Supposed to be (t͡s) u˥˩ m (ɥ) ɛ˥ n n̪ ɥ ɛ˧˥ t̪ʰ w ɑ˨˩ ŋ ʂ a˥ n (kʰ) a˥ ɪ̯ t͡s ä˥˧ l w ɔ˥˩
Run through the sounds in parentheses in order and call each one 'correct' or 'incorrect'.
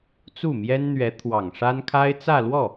correct, incorrect: j, correct

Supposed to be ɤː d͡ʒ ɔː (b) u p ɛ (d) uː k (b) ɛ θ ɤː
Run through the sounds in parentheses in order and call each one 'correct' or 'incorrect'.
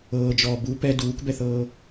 correct, correct, correct

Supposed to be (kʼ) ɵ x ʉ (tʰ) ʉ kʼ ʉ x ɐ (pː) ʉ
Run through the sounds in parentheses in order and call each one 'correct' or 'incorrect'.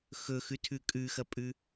incorrect: x, correct, incorrect: pʼ

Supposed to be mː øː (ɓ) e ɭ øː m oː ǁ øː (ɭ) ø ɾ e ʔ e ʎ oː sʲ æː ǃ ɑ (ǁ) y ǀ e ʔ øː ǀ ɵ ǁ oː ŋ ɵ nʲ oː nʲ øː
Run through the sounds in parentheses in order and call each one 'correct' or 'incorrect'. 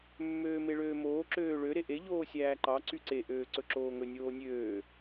incorrect: m, correct, incorrect: ǀ

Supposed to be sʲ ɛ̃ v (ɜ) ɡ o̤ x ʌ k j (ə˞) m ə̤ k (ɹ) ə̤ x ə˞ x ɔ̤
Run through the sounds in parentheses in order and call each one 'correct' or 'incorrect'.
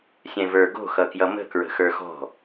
incorrect: ə˞, incorrect: ʌ, correct

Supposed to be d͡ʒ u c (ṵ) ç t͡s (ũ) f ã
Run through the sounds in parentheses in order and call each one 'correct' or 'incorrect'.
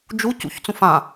correct, correct

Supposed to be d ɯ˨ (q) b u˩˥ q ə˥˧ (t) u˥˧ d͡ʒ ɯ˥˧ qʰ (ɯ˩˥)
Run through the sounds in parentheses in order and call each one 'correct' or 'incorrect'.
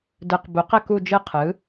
correct, incorrect: k, correct

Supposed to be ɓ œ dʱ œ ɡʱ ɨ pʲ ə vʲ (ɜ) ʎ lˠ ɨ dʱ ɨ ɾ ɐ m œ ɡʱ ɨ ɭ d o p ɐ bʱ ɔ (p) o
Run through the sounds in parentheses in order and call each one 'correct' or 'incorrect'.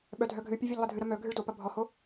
correct, incorrect: h

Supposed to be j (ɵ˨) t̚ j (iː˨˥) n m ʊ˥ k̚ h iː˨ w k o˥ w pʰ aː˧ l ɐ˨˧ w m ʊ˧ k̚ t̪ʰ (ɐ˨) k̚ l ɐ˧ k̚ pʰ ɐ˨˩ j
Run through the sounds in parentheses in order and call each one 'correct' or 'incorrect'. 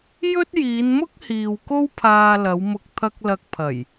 incorrect: ɵ˥, incorrect: iː˨˧, incorrect: ɐ˥

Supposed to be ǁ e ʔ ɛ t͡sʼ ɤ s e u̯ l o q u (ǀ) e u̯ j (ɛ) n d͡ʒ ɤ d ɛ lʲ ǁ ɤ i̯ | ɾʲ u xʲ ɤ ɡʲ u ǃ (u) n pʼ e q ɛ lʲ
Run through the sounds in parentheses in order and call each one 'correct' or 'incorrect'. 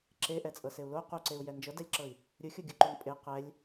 correct, correct, correct

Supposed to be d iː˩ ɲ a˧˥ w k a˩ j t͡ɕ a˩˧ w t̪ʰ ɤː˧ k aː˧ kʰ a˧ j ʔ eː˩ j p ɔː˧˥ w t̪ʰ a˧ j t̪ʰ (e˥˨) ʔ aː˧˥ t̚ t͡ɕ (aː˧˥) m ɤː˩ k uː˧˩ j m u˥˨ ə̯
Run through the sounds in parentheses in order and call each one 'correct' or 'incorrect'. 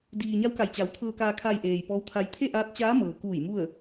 correct, correct

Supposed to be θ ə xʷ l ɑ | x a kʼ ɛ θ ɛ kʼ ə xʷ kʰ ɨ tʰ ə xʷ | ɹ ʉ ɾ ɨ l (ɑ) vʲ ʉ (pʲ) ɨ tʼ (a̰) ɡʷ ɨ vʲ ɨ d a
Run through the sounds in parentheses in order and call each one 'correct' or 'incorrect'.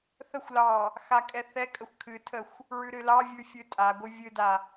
correct, incorrect: fʲ, incorrect: a

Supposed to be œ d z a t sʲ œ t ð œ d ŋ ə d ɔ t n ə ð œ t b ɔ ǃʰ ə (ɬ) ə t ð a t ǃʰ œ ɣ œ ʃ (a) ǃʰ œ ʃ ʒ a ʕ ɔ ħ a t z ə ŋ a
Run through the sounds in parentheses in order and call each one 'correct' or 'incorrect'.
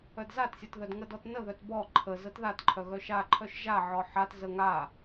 incorrect: z, correct

